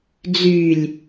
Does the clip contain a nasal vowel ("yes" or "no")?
no